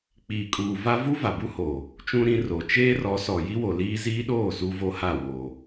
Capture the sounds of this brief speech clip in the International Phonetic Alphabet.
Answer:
k͡p iː˨ kʼ uː˨ v a˦ v u˦ v a˨ b u˦ h oː˨ | t͡ʃ ũ˦ ɾ ĩ˨˦ r o˨ t͡ʃ eː˦ r ɔ˨˦ s ɔ˨ j i˦ w o˨ l iː˦ z iː˦ ɗ oː˦˨ s u˦ v o˦ h a˦˨ w oː˨

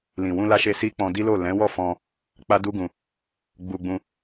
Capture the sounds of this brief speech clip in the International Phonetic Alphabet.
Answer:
l ĩ˨ w ũ˧ l a˧ ʃ e˧ s i˦ k͡p ɔ̃˧ d i˦ l o˦˨ l ɛ̃˨˦ w ɔ˦˨ f ɔ̃˧ | k͡p a˦ d u˦ ɡ ũ˧ | ɡ͡b u˧ ɡ͡b ũ˧

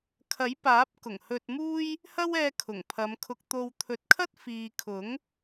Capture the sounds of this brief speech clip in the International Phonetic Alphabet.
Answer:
kʰ ɐ˨˥ j p aː˨˥ p̚ k ʊ˨˩ ŋ h ɵ˧ t̚ m uː˥ j | h ɐ˥ w ɛː˧ kʰ ʊ˨˩ ŋ pʰ ɐ˨˧ m kʰ ʊ˧ k̚ t̪ o˧ w t̪ʰ ɵ˨˥ t̚ kʰ ɐ˥ t̚ f iː˨ kʰ ʊ˨˥ ŋ

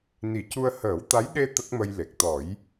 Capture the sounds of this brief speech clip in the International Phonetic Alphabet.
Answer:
n i˨˩˦ c u˧ ə̯ h əː˨˩˦ w t̪ a˧˥ j ɗ e˧ t̪ ə˦˥ k̚ m ə˧ j l e˨˩ k̚ t̪ ɔ˨˩˦ j

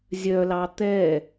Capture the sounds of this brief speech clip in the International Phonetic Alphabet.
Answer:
zʲ œ l ɑ t̪ ɛ

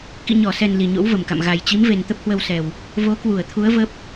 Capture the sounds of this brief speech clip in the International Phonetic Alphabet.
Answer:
k ḭ˧˨ ɲ ɔ˧˩ s ɛ˨˩ n l i˨˩ ɲ o̰˧˥ w v ə˧˩ m k a̰˧˨ m ɣ a˨˩ j t͡ɕ i˨˦ m v e˨˩ n t̪ ə˦˥ p̚ h w ə˧ w s ɛ˨˩ w | v o˨˦ k w u˧˩ ə̯ t̪ʰ u˨˦ ə̯ v ə˦˥ p̚

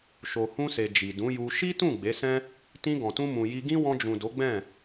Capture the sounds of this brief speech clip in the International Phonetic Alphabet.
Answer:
ʃ o˨ h ũ˧ s e˨ d͡ʒ i˨ d ũ˨˦ j u˧ ʃ i˦ t ũ˦˨ ɡ͡b e˨˦ s ɛ̃˦ | t ĩ˧ ɡ ɔ̃˨ t ũ˧ m ũ˨ j i˧ ɡ ĩ˦ w ɔ̃˧ d͡ʒ ũ˨ d o˨˦ ɡ͡b ɛ̃˦˨

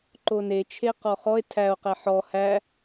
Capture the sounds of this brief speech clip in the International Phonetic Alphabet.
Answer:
ǃ o n e t͡ʃʰ e q ɔ χ ɔ e̯ tʰ æ o̯ q ɛ ħ ɔ h æ

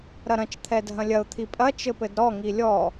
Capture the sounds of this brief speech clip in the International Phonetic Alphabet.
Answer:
ɾ ɐ ɾ ɐ̃ t͡ʃ t̪ʰ ɛ dʱ ɐ̃ lʲ ɐ ʊ̯ t̪ʰ i pʼ ɐ t͡ʃ ɘ p ɘ d ɾ ɔ ŋ i lʲ ɔ

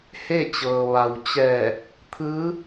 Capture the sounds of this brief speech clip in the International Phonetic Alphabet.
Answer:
h e˥˨ t͡ɕ ɤː˩ ʋ a˩ w t͡ɕ ɛː˧˩ | t̪ʰ ɯː˧˥

